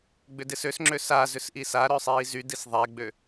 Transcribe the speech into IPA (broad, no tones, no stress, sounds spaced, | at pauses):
ɡ͡b ʏ d ɪ s ø s ŋ͡ǁ ø s a z ʏ s ʔ i s a ɾ œ sˤ iː z y d i s ðˤ ɛ ɡ͡b ø